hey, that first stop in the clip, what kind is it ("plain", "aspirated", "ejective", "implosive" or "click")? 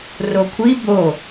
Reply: aspirated